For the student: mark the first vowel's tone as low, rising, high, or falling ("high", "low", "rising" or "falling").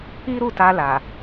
high